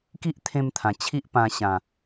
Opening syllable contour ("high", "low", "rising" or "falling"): high